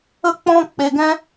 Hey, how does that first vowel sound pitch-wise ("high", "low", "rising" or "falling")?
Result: high